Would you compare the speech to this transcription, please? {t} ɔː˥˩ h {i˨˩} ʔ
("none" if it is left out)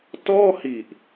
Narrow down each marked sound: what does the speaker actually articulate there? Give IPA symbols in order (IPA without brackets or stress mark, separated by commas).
t, i˨˩